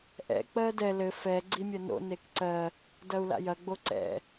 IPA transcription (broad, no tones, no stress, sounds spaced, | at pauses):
ʔ ɛ̰ k͡p ɜ d ɛ l ɘ f ɛ ɡ͡ǀ i mʲ ɐ n o̰ n e k ǀ ɜ | d ɐ u̯ l a̰ j ɐ ɡ͡b o ǀ ɛ̰